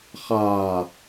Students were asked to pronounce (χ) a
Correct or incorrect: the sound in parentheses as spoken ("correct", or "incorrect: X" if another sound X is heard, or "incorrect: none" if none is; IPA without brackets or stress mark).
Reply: correct